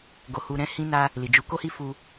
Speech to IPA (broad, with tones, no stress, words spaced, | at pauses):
ɡo˧hu˧ɾɛ̃˦ hĩ˧na˧ | li˨d͡ʒu˨˦ko˦hi˦ fu˧